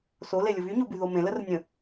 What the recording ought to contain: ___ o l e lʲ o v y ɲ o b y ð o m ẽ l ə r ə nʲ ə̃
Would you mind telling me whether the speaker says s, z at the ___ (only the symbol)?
s